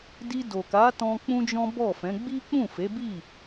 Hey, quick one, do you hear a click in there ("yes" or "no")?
no